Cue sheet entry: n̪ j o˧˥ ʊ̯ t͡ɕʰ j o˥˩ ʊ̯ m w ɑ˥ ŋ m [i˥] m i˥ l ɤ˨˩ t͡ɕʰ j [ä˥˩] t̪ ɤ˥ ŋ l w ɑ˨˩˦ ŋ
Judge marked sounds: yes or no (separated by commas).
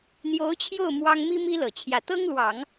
yes, yes